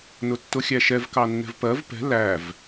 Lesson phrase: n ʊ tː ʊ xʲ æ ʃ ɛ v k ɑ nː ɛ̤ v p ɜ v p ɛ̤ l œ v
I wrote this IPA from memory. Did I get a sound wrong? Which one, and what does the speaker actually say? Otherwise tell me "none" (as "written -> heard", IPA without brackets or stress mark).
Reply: œ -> æ